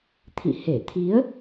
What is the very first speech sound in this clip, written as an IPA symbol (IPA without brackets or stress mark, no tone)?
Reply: t̪ʰ